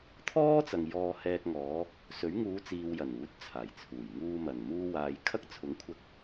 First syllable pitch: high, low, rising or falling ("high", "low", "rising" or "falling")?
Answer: high